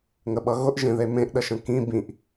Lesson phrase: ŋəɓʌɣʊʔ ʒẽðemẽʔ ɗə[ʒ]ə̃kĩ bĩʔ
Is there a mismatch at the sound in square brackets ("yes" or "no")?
yes